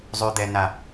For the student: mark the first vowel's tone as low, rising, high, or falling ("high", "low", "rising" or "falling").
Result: low